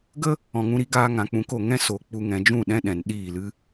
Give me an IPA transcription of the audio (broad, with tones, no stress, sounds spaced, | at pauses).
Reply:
ɡ ə˧ | ɔ̃˨ ŋ ũ˧ ɾ i˦ ɡ aː˧ ŋ ã˨ k͡p ũ˨˦ k o˨ ŋ ɛ̃˦ s o˨˦ k͡p u˨ ŋ ɛ̃˨ d͡ʒ ũ˦˨ ɗ ɛ̃˧ ɗ ɛ̃˨ n ɗ iː˦˨ l ɨ˦